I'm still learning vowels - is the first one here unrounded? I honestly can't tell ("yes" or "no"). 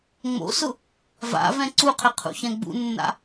no